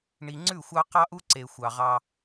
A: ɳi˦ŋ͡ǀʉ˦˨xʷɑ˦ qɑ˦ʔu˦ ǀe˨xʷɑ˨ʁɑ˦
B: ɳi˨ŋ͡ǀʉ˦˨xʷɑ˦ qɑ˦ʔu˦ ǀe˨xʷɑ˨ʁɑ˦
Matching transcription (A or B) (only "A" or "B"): B